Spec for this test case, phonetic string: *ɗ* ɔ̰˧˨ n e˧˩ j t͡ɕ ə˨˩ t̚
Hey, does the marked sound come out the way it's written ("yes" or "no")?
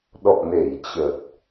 yes